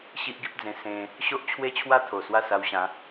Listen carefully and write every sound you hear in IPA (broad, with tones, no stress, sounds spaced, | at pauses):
ɕ i˦ ʔ ɡ i˦ p̚ d͡z ẽ˧ s ẽ˧ | ɕ o˦ ʔ t͡ɕʰ w e˦ t͡ɕʰ w a˦ t̪ʰ o˨˩ s w a˥˧ s a˧ w ɕ ã˨˦